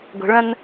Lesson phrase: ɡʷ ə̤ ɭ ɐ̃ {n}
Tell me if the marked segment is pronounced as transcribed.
yes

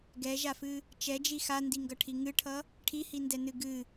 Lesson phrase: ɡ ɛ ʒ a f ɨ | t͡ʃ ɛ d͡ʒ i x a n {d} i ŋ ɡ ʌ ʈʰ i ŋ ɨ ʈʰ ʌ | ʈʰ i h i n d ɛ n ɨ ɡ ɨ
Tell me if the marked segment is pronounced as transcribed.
yes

